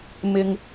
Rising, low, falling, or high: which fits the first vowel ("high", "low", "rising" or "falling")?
low